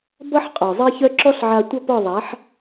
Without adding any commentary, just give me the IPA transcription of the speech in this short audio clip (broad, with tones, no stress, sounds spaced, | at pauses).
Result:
b ʌ˦ ħ qʼ ɔ˨ zˤ e˦ ç œ˦ ǁ ɔ˦ ɬ ʕ a˧ tʷ ʌ˦ p ɔ˦˨ ðˤ a˨˦ ħ